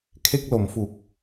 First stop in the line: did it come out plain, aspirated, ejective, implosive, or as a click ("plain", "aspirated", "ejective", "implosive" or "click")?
aspirated